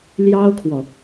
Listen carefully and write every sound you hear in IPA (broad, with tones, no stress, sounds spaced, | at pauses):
l j ɑ˥ ʊ̯ kʰ w ɔ˨